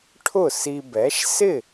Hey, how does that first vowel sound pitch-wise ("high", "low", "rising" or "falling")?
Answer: falling